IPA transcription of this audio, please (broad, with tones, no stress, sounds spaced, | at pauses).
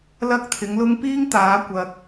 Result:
l ɐ˥ k̚ t̪ʰ ɪ˨˧ ŋ l ʊ˥ ŋ p iː˥ ŋ t̪ aː˨˧ kʷ ɐ˧ k̚